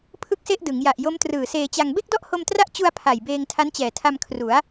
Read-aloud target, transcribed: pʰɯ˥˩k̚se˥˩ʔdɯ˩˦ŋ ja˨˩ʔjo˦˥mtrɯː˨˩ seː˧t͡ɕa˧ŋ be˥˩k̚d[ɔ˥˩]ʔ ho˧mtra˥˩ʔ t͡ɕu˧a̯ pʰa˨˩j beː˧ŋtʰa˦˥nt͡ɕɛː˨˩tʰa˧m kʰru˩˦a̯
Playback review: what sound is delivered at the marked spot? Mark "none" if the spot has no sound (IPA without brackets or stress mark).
ɔ˥˩